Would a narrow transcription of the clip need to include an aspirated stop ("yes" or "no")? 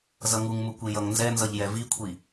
yes